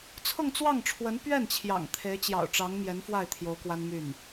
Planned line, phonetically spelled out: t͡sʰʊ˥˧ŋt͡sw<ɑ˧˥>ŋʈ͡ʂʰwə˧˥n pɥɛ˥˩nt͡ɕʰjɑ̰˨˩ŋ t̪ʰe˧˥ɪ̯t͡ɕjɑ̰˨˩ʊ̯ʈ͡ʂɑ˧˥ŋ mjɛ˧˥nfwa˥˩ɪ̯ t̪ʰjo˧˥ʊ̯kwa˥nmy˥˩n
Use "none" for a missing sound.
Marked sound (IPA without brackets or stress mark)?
ɑ˥˩